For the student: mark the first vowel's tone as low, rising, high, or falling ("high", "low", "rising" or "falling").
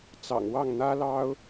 low